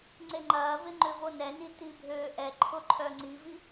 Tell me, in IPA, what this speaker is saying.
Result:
ŋ͡ǀeŋ͡ǃɐːvɪ ŋ͡ǃʏvonɛni tibʱøːʔɛǃʰʊ ǃʰœŋ͡ǀivi

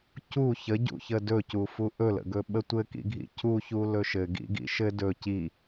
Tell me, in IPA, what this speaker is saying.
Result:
cu çəɟṵçə dɵcufu ʔɵlə̰ɡɵ ɓətʷɘkḭɡʱḭ cuçu lɵʃɘɡḭɡḭ ʃɘ dɵ ci

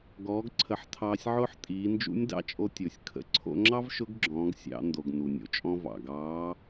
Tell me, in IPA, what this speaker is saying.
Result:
ɡɔː˩˧ɡǀʰə˩˧ħ tʰɑː˧sʲʕʊː˥ħ tʼiː˩˧nd͡ʒṵ˧˥nʲ dɑ̰˧t͡ʃʼo˧tʲʊː˩sʲ kʰə̰˩ǀʰo̰˧ŋ͡ǁɑ˥v ʃʊ˧˥ɡɡ͡ǁɔ̃ː˩˧ɡ sʲɑ̰˩˧ ndo˩ɡ nu˩nʲo̰˩˧t͡ʃʼɔ̃˧v ɑ̰˩ɡɑː˧˥

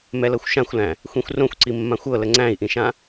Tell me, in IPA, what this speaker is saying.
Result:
mɛlɤxʷʃãxʷlæ̃ | xʷĩxʷrõxʷǀi mːãxʷɤ ləŋ͡ǀæ̃i̯ʔĩʃã

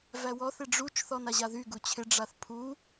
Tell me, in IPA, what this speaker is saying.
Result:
væwɔθ ɪɖ͡ʐut͡ʃ θɔnaʑaðy ɡut͡ɕʰɪ ɖ͡ʐaθpʰu

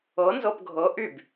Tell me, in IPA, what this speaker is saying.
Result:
ɤ nzɤpɡʱɤ ʔyb

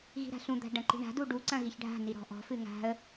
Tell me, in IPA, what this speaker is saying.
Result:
ɣi̤ɾa̤ɬũd̪a̤ ɖɐ̃ǃi̤ɳa̤du ɖuǀɐ̃ ɣiçɖʱa̤ni ɾɔ̤ʔɔ̤fɨ ŋa̤ə̯

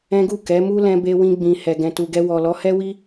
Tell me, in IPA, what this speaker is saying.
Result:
ɛ̃˦ɡu˦˨ kɛ˨˦mu˦ lɛ̃˧be˧wĩ˧ ɡ͡bĩ˨ hɛ˨ɡɛ̃˨tu˨ɡɛ˧ wɔ˨lɔ˨˦hɛ˦wi˦

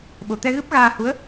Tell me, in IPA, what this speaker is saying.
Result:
ɓo˨˩˨t̪ɛ˧ ɣɨ˦˥p̚ɣaː˧ hu˧˥ə̯

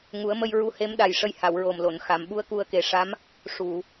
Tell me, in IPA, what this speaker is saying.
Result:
ŋu˨˩˦ə̯mə˧j ɹu˧he˧˥mɗa˨˩j ʂə˧jha˨˩˨wɹo˨˩m lo˨˩˨n xa˨˩˨mɓu˧˥ə̯ ku˧ə̯ke˨˩˦ʂa˧˥m | ʂu˨˩˨

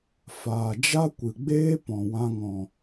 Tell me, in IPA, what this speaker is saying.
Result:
faː˨d͡ʒa˦kʷɨ˨ɡ͡beː˦ pɔ̃˨wã˧ŋɔ̃˨

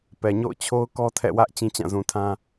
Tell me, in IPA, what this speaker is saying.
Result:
pɛ˨ɲo̰˦˨ʊ̯t͡ɕʰo˦ʊ̯kɔ˦ tʰɛ̰˦˨wä˦ʔ t͡ɕĩ˦t͡ɕã˦˨zũ˨tʰã˦

